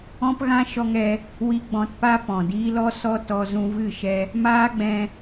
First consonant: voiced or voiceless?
voiceless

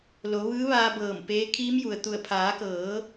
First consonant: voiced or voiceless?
voiced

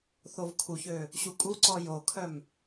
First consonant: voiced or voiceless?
voiceless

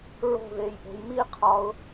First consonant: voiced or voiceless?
voiced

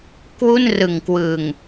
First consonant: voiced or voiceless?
voiceless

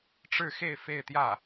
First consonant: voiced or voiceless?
voiceless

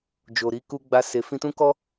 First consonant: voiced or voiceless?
voiced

